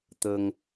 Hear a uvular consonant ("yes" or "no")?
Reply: no